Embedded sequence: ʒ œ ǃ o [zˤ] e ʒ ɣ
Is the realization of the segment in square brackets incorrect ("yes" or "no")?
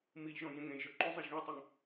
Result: no